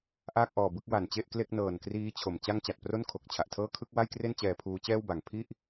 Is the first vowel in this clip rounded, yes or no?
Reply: no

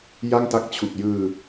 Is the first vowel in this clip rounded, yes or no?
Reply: no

